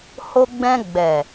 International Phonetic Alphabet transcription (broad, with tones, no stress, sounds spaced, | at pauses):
h o˧ ɡ͡b ɛ̃˧ ɡ͡b ɛ˨